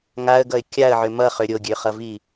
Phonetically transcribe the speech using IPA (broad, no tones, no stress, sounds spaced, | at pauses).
ŋ a ə̯ ɡ ʌ ɪ̯ kʲ a ə̯ ʕ ʏ m ʌ χ ø ɾʲ o ɡʲ ø χ ʌ v i